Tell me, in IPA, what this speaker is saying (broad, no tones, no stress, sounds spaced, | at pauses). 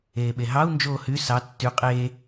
eː ɓ e ɦ ɑ u̯ n d͡ʒ oː h y s ɑ tː y qʼ eː